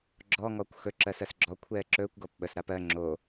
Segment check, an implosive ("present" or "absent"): present